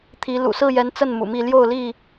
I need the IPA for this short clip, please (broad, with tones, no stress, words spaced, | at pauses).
t̪ʰi˨˦ lṵ˨˩sɹ̩˥˨jɛ˨˦n t͡sə˥˨nmṵ˨˩mi˥˨ ljo˥˨ʊ̯li˥˨